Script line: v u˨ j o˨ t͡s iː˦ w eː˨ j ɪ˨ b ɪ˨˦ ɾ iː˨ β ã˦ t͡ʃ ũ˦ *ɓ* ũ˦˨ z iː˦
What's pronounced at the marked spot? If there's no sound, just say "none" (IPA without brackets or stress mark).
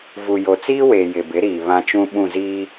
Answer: ɓ